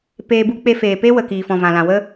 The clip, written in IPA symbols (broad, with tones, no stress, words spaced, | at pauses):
peː˧bu˦ k͡pe˧feː˨ pe˦wə˨ kiː˨fɔ̃˨vã˨lã˨ wə˦